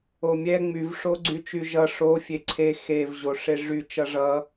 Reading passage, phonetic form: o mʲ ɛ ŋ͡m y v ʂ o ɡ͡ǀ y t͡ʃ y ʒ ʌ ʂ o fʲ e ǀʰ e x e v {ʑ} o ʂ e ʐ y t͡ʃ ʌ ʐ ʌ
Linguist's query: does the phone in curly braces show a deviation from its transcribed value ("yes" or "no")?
no